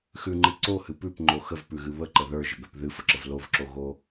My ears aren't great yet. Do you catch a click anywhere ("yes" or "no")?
yes